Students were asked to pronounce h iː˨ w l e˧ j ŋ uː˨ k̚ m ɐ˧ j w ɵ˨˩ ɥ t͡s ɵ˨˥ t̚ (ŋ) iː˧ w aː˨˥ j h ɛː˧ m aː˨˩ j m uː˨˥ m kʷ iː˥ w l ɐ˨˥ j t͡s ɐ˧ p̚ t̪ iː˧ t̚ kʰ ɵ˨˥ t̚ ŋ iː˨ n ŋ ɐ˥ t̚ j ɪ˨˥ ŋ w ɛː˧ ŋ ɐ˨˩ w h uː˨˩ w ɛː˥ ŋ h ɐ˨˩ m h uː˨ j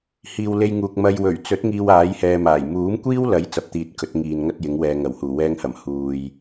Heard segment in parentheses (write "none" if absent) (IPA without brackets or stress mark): ŋ